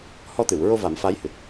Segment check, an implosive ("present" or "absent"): absent